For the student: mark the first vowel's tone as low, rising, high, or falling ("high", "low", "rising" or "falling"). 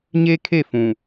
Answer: high